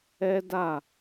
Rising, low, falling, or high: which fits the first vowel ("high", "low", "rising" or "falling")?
high